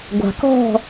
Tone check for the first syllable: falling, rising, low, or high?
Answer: low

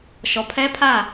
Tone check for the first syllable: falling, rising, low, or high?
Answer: low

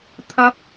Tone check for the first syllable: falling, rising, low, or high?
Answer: rising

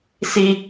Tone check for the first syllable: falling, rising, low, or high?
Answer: high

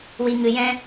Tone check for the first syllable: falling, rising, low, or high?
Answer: low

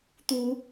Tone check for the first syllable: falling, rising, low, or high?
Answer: rising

